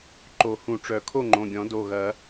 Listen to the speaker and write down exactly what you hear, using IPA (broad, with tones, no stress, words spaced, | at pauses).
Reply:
ǃo˨˩˦ hũ˨˩˦ʈ͡ʂœ˨˩˦ kʰo˥˩ŋ͡ǃõ˩˧˩ɡʲɔ̃˨˩˦ do˩˧˩ɣɐ˨˩˦